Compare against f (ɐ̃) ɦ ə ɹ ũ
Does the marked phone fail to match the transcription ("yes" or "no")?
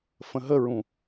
yes